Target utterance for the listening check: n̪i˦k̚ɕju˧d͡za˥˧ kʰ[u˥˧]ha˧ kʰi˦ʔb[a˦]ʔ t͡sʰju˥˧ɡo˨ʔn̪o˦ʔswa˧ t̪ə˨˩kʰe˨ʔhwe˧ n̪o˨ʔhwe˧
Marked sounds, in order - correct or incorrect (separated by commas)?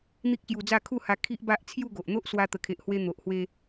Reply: correct, correct